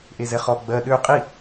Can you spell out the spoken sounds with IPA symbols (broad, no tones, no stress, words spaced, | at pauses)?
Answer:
ʔezɛχɔ ɡ͡bɜ ɗø qʼi